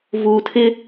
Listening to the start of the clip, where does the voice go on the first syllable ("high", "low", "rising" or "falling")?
low